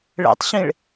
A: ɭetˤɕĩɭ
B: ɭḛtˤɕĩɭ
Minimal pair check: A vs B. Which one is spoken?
B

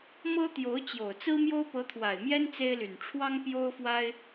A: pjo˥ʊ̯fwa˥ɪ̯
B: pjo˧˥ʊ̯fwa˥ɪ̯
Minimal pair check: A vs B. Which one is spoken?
A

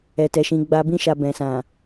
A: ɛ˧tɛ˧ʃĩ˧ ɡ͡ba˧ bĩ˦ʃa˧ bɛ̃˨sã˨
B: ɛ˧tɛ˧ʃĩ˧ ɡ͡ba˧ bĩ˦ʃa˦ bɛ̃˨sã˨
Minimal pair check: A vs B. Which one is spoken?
A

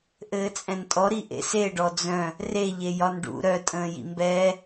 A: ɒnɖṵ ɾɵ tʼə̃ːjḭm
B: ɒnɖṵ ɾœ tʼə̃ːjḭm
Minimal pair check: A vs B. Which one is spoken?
B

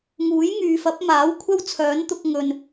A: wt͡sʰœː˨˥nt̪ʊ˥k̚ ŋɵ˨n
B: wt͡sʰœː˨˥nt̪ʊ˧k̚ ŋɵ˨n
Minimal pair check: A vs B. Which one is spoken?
B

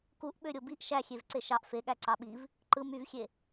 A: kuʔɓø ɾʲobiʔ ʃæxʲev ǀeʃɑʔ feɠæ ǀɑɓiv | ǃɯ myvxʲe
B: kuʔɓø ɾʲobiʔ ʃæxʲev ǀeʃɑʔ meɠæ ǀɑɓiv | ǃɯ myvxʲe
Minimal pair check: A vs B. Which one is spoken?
A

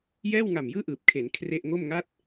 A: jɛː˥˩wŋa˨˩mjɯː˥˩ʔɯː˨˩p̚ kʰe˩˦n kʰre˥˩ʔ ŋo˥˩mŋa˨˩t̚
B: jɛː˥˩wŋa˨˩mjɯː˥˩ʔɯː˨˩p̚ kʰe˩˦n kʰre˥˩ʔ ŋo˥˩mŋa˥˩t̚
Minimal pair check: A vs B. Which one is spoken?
B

